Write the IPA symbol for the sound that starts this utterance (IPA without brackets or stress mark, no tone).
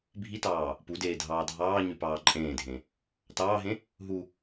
bʱ